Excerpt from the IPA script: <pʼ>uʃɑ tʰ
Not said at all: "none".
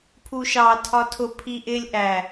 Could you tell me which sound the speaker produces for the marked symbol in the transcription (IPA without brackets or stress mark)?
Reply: pʰ